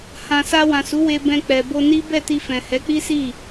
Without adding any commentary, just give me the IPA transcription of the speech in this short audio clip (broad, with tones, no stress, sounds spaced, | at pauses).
h ã˨ s a˧ w ã˨ s u˨˦ w e˧ b ɛ̃˧ k͡p ɛ˨ b o˧ n i˦ b ɛ˦˨ t i˧ f ɛ̃˨ h ɛ˨˦ k͡p i˦ s i˦˨